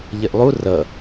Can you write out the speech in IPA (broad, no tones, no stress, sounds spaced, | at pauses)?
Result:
ʎ ɪ ʔ lˠ u r ʌ